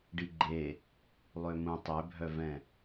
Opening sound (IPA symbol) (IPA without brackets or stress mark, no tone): ɖ